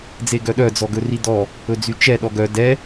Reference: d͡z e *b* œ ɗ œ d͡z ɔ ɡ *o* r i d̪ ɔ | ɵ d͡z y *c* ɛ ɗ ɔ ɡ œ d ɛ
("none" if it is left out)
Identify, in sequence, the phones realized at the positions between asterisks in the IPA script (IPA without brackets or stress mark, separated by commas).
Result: ɡ, ɵ, t͡ʃ